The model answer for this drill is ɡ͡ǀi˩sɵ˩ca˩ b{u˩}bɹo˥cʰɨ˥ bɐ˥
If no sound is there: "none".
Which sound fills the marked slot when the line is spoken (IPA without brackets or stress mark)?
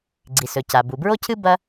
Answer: u˩